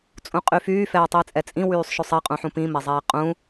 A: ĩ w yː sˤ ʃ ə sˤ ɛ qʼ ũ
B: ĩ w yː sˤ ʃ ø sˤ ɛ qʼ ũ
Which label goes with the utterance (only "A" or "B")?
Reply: B